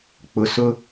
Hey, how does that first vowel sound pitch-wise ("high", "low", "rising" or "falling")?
low